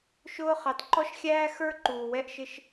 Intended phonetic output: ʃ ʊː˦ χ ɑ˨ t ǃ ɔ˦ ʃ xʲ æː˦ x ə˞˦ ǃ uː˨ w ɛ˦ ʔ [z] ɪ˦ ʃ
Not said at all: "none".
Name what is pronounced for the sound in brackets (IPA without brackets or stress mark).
ʃ